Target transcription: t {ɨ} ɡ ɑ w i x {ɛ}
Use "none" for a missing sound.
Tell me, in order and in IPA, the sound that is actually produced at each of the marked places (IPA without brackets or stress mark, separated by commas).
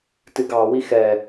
ɨ, ɛ